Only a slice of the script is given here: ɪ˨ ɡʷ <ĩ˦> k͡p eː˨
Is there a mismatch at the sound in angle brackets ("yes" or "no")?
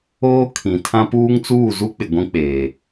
no